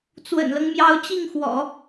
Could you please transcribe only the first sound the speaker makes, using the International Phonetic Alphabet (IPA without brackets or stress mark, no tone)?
t͡s